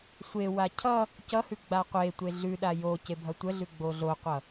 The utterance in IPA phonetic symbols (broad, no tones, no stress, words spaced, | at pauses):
sʷewa cʰʌ | cʌhʉ ɡ͡baqʷetʷe ɮʉɗa jo cebʱʌtʷəɮʉ ɡ͡boɮoqʷʌ